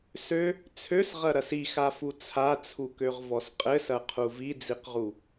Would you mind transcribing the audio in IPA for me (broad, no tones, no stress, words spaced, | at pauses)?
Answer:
sø | t͡sʰøsʁɐɾɐs ixafu t͡sʰat͡sʰukøʁvɔs qʼɘsɐqʰu vid͡ziqʁu